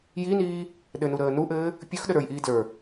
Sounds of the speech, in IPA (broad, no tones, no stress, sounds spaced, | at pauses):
j i n iː | ɗ ɘ n u ɾ əː n u ʔ ɘː | pʲ ɵ x ɗ ə ɾ ə˞ j ʔ iː d l ə˞